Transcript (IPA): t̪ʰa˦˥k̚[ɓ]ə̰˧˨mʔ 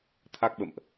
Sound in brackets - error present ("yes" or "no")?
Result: no